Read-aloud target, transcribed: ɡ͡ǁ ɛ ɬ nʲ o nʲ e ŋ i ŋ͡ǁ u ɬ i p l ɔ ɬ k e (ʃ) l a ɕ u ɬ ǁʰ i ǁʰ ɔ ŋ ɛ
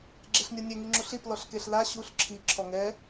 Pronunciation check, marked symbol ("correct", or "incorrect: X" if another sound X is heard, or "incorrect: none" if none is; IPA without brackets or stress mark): incorrect: ɬ